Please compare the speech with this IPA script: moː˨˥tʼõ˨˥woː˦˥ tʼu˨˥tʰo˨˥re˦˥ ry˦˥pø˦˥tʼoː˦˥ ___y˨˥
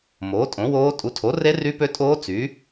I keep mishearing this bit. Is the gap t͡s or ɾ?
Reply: t͡s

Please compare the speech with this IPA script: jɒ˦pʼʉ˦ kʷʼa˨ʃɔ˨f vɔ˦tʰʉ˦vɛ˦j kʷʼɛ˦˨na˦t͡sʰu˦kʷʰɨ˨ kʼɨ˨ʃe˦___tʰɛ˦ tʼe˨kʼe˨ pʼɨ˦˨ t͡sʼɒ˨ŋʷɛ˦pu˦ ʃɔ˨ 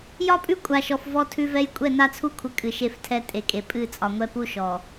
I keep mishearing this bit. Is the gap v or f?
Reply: f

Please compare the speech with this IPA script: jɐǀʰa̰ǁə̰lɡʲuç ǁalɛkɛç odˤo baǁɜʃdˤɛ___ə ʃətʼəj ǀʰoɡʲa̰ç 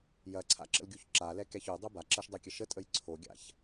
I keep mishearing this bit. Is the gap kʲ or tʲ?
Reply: kʲ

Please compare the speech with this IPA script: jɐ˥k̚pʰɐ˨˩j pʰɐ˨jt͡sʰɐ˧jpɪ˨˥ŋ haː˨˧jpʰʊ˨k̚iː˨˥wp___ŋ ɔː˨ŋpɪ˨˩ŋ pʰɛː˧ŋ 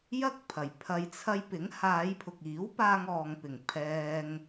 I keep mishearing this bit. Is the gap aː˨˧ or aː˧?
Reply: aː˧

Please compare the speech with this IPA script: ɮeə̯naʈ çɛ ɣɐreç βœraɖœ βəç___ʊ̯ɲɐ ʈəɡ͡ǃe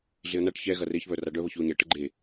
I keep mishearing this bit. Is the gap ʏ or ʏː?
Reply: ʏ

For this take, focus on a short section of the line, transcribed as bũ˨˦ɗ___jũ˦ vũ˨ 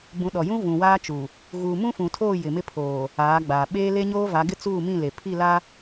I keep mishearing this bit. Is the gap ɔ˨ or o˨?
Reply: ɔ˨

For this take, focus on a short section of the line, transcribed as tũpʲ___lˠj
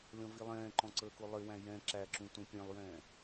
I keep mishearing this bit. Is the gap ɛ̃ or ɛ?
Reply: ɛ̃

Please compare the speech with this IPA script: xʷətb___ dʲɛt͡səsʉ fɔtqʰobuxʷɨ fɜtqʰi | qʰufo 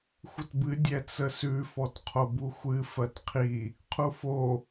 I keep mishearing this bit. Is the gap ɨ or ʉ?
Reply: ɨ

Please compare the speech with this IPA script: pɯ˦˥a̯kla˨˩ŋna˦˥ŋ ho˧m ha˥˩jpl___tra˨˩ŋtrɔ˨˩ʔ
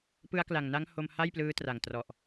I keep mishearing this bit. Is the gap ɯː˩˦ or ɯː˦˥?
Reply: ɯː˦˥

